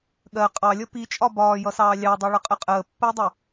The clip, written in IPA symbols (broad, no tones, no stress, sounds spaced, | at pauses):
ɠ ɜ qʼ ɑ lʲ ʌ p i t͡ʃʼ ɒ b ɒː j ʌ s ɑː lʲ ɑ dˤ i ɭ ʌ qʼ ə qʼ əː pː əː dˤ ʌ